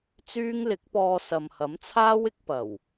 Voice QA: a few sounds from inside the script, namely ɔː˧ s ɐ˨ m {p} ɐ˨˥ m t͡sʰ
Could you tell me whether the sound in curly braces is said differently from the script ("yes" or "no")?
yes